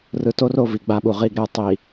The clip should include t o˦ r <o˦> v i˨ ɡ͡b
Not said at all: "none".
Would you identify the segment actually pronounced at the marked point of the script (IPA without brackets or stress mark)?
o˨